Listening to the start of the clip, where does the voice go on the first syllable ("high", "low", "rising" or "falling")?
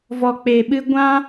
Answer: low